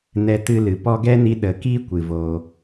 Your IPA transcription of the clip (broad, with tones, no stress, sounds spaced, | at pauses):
n ɛ˧ t ɨ˧ l ɨ˨ p ɔ˧ ɡ ɛ˦ n i˧ ɗ ə˨ k iː˦ kʷ ɨ˨ v o˧